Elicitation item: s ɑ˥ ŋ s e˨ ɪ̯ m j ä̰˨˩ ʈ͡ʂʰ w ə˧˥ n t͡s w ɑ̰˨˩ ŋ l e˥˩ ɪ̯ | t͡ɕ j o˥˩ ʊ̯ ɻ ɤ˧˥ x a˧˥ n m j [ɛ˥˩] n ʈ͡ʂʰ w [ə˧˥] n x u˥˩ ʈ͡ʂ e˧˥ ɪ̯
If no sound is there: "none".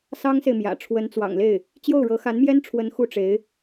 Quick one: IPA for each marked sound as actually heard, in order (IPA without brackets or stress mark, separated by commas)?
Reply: ɛ˥, ə˧˥